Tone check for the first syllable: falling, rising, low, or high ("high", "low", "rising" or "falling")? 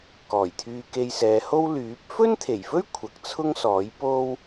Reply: low